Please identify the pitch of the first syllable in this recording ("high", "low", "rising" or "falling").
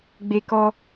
high